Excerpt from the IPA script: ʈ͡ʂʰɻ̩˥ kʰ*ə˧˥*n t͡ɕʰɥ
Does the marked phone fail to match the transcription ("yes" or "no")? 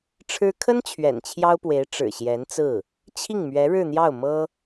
yes